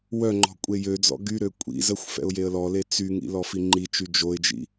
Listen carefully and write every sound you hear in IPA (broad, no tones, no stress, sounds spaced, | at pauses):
w œ ŋ͡ǃ ɔ̤ kʷʼ e j ø d͡z ɔ̰ ɡ y ɾ ø kʷʼ ḭ z ə xʷ f ɛ̰ ʊ̯ j e ə̯ l ɔ l e t͡s y ŋ ḭ l ɔ f i ŋ͡ǃ i t͡ʃ y d͡ʒ o ɪ̯ d͡ʒ ḭ